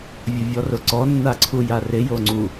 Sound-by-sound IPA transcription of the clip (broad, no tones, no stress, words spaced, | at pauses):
vʲʊvʲɔrʊǀɔ nːaǀʰujarɪ joŋ͡ǀu